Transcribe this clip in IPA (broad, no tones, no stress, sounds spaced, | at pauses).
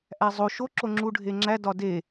ʔ æ zˤ o ʃ o ǁ o ŋ͡ǁ u ɖʱ e ŋ͡ǁ æ d ɒ d e